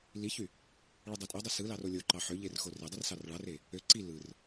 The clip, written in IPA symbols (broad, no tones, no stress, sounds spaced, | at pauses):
l i ç y | ɭ ɯ dˤ e tʼ o dˤ i s ɯ l ɑ r o lʲ o ǃ ɑ ħ ø ʎ e r x o r e dˤ i r s ɑ r ɭ ɑ r e | ø ǀ i l ɯ r